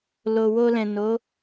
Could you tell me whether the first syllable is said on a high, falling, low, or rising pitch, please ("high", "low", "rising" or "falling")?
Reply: low